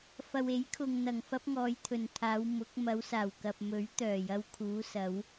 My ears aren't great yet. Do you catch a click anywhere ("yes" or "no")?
no